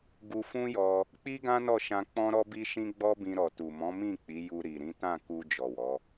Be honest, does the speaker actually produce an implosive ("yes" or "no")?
no